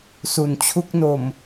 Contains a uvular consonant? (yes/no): no